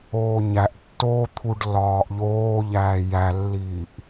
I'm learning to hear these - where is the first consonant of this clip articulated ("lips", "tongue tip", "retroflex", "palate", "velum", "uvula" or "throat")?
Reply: palate